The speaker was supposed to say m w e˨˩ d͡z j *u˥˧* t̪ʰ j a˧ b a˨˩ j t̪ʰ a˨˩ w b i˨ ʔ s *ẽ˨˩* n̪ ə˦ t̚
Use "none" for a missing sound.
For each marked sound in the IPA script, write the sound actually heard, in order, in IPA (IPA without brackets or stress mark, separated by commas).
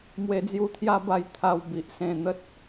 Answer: u˧, ẽ˨˩